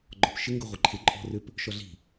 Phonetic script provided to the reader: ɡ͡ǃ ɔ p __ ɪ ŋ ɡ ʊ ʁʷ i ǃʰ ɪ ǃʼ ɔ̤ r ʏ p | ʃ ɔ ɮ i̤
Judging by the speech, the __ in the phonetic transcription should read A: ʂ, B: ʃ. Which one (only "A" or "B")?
B